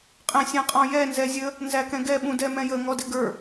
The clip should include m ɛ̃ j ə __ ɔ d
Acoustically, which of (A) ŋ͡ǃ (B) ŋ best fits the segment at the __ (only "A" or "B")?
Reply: B